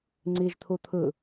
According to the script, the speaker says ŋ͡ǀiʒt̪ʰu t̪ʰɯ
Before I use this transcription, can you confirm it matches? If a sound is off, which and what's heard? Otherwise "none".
none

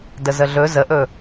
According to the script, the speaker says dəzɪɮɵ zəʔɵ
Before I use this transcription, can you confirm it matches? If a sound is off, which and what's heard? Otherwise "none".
ɪ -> ə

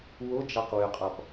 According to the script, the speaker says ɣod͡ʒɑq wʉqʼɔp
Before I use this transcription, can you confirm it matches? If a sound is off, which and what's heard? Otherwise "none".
ɣ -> w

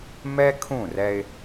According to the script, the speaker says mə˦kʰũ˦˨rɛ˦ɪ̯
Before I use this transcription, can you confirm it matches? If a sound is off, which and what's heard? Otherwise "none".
ə˦ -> ɛ˦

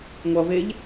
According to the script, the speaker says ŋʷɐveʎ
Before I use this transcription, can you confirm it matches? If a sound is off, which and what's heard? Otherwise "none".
none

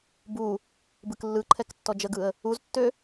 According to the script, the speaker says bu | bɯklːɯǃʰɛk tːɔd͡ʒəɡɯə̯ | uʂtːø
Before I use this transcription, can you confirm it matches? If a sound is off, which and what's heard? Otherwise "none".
ʂ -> z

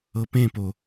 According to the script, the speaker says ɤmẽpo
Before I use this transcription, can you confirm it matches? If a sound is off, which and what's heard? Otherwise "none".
m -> p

